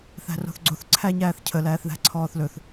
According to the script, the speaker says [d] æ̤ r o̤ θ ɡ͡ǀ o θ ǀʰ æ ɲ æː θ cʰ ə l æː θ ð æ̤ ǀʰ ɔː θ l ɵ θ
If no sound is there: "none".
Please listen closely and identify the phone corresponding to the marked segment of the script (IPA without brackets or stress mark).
θ